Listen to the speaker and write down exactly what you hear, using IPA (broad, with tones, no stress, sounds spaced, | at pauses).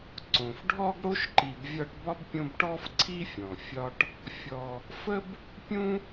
ǀ õ˩ f ɖʱ ɔ˥ ɡ ɽ o˥ ʃ ǃ i˨ b vʲ ɒ˦ ʈ b ɒ˥ b pʲ õ˦ b ʈ ɔ˥ f ǀʰ i˥ fʲ ɔ̃˩ fʲ ɒ˦ ʈ | fʲ ɔ˨ | f ə˥ b | pʲ ũ˥